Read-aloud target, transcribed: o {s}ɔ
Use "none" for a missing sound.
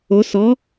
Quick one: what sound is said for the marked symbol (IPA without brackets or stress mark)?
s